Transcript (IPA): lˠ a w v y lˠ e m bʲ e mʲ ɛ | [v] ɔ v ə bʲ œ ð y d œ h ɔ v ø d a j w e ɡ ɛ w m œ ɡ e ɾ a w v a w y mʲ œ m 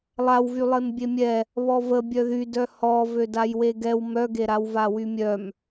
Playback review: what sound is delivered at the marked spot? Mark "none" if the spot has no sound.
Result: β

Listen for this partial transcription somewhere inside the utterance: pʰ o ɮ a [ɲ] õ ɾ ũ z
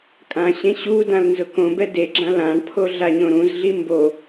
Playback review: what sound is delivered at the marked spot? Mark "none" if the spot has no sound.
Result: ɲ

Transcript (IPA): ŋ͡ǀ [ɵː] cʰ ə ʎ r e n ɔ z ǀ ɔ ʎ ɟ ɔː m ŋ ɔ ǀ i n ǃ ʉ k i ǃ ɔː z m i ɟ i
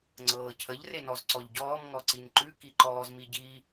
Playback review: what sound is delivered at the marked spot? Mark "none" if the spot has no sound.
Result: ɤː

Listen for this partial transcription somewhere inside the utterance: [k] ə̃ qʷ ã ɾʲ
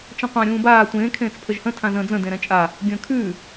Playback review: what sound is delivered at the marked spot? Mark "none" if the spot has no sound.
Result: t͡ʃ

